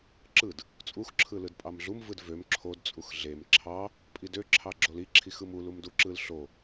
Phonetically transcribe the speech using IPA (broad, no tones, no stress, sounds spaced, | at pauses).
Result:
ǁ ɯ d | t͡sʼ u x ǁʰ ɯ l ɯ d pʼ ɑ m ɮ u m v ɯ d v ø m ǁʰ o d t͡sʼ u x ɮ e m ǁʰ ɑ | pʼ i d ø ǁʰ ɑ ɡ͡ǁ o l i ǁʰ i x ɯ m u l u m d u ǁ ɯ l ɬ o